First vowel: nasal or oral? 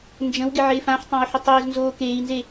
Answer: nasal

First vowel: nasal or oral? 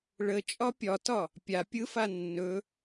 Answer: oral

